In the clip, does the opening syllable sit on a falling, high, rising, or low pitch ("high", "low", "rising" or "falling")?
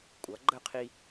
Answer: rising